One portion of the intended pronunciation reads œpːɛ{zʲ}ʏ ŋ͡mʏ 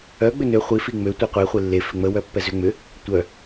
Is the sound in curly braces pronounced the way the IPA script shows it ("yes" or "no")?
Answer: no